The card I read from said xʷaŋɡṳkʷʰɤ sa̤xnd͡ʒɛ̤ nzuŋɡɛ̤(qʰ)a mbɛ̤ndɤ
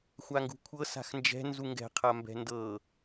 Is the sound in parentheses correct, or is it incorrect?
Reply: correct